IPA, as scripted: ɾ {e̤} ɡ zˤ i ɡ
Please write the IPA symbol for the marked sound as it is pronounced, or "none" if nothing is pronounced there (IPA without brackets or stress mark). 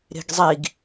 e̤